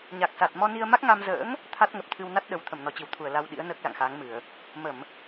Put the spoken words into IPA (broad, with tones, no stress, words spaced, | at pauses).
ɲa˨˩k̚sa˨˩t̚ mɔ˧ni˧ə̯ ma˦˥k̚ ŋa˧mzə̰ː˧˥ŋ | t̪ʰa˦˥t̚ŋə˨˩p̚t̪ʰɨ˧w na˦˥t̚ɗə˨˩w t̪ʰə˧˩mnɔ˨˩t͡ɕi˧˩wt̪ʰu˧˩ə̯ la˧wɗḭ˧˥ə̯ nəː˦˥k̚la̰˧˨ŋxaː˨˦ŋmɨ˧˩˨ə̯ | mə˧˩˨m